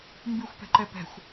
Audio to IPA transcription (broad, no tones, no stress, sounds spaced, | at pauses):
m b ʉ xʷ p ɛ̤ ǃ ɛ p ɛ̤ xʷ